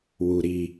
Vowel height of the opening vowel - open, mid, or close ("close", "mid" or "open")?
close